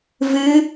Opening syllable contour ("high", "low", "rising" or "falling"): rising